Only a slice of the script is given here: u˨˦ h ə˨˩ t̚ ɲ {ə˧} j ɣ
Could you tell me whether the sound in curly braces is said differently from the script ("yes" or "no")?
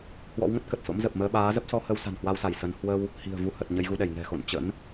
no